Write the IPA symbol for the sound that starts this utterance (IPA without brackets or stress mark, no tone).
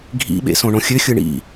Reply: ɡʱ